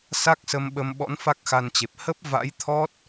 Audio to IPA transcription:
s a˦˥ k̚ s ə˧ m ɓ ə˧ m ɓ ɔ̰˧˥ n f a˦˥ k̚ x a˧ n t͡ɕ e˨˩ p̚ h ə˦˥ p̚ v a̰˧˥ j t̪ʰ ɔ˦˥ t̚

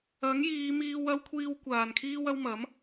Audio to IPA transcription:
ɐ˨˥ ŋ j iː˨˧ m iː˧ w ɐ˥ w kʷʰ iː˥ w kʷ aː˨ n kʰ iː˥ w ɐ˥ w m ɐ˨˥ m

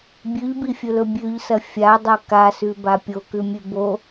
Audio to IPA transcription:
bʲ ʉ ʎ b i fʲ ɵ l ɵ bʲ ʉ ʎ s ɐ fʲ a dˤ ɵ k a s ʉ b a pʲ o k ʉ mʲ ʉ b o

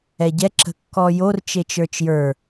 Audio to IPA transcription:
ɛ ɟ ɛ ǁ ə̤ kː ɔ j o r t͡ʃ e t͡ʃ ə˞ t͡ʃ j ə˞

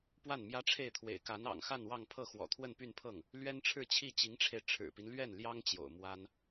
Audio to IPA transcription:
p w a˥˩ n m j ä˥ ʈ͡ʂʰ e˥˩ ɪ̯ t̪ʰ w ḛ˨˩ ɪ̯ k a˧˥ n ɑ̰˨˩ ŋ x a˥˧ n w ɑ˥˧ ŋ pʰ ɤ˥˩ x w ɔ̰˨˩ t̪ʰ w ə˥˧ n p y˥˧ n pʰ ɤ˥˩ ŋ | l ɥ ɛ˥ n ʈ͡ʂʰ ɻ̩˥˧ t͡ɕʰ i˥˩ t͡ɕ i˧˥ ŋ ʈ͡ʂʰ e˧ ɪ̯ ʈ͡ʂʰ ɻ̩˨˩ p i˦ n l ɥ ɛ˥˩ n l j ɑ˥ ŋ t͡ɕ j o̰˨˩ ʊ̯ m w a˥ n

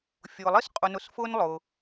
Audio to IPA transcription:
fʲ ʊː˨ lˠ i˥ s qʼ ʊ˨ n ʊ˨ s f ʊː˦ n lˠ ʊː˩

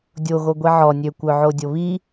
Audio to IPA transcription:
dʲ o ɣ o ɡʷ i ʕ ɔ nʲ ø kʷ œ ʕ o dʲ o β i

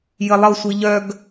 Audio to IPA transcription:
j ə lˠ ɤ sʷ i ʎ œ ɡ

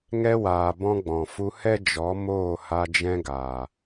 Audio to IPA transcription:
ŋ ɛ˧ w aː˨ b ɔ̃˧ ɡ͡b ɔ̃˨ f u˧ h ɛ˦ d͡ʒ ɔ˨˦ m oː˦˨ h a˧ d͡ʒ ɛ̃˧ ɡ aː˨

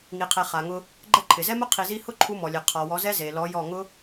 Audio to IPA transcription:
ŋ i˨ qʰ ɛ˨ χ a˨ ŋ ʊ˧ | ɡ͡ǃ ɛ˦ ǃʰ ɪ˨ z ɛ˦ m ʊ˦ qʰ i˧ z i˦ h ʊ˦ ǃʰ u˧ m ɔ˨ lʲ e˨ qʰ ɔ˨ w ɔ˨˦ z ɛ˦ z e˨ l ɔ˨˦ j ɔ˦˨ ŋ ʊ˦

